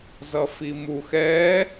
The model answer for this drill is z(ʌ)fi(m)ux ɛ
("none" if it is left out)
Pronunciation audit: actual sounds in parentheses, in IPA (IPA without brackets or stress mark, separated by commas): ʌ, m